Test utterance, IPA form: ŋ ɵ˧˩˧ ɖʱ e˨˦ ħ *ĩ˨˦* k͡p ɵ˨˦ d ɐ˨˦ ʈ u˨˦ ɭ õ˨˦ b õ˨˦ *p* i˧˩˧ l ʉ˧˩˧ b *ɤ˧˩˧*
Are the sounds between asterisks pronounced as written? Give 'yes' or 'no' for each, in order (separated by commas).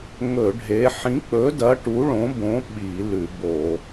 yes, no, no